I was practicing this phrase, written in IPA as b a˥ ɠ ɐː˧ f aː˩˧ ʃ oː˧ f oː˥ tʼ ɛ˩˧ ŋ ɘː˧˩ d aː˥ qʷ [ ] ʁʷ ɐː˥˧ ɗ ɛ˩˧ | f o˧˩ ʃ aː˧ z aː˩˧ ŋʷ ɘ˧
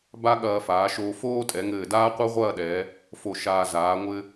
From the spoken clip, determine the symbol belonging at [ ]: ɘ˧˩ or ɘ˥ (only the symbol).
ɘ˥